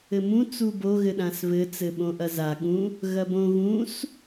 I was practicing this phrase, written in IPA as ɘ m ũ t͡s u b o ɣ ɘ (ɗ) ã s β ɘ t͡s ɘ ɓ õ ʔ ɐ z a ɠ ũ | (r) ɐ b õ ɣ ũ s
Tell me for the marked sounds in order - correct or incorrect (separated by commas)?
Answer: correct, incorrect